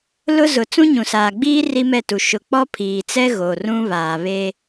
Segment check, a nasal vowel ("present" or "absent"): present